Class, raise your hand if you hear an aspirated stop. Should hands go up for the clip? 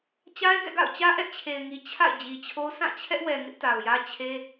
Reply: yes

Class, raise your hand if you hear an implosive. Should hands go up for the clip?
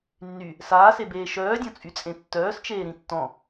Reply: no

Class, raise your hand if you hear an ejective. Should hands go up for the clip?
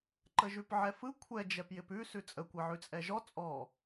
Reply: yes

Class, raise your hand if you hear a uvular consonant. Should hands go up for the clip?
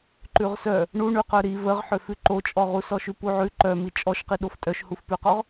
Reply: yes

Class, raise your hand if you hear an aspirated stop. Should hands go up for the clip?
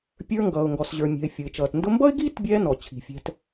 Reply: yes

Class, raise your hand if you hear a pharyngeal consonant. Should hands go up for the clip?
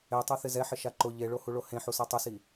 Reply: yes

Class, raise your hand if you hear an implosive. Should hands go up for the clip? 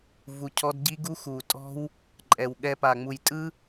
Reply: yes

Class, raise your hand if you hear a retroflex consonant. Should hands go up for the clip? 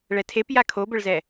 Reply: yes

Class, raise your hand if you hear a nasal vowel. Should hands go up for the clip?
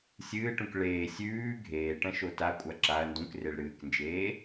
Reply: yes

